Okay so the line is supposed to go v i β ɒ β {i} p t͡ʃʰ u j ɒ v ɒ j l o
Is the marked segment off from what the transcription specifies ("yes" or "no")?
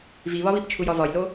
no